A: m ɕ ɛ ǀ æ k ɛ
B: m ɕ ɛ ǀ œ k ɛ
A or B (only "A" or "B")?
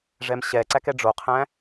A